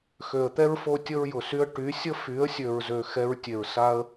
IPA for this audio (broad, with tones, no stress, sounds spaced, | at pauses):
x ø˨ ə̯ t̪ ɛ˦ ɹ f o˧ tʲ ə˦ ɹ j ʊ˨ s y˦ ə̯ ʈ y˨˦ sʲ ə˦ f y˨˦ ə̯ sʲ ø˨ ɹ z ø˨ x ɛ˧ ɹ tʲ e˨ ɹ s a˧ ə̯